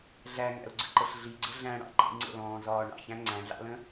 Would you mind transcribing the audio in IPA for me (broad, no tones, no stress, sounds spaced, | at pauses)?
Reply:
ɮ æ ŋ æ̰ ʊ̯ ɡ͡ǀ ə ǃ ə ɬ ɮ i ɡ͡ǀ ə ɮ æ̃ ɽ ɑ̰ ǃ ḭ ŋ͡ǀ ə̰ l ɔ̃ː z ɒː ɳ ɑ̰ ç æ̃ ŋ͡ǀ æ̃ ɮ ɑ̰ l ə̃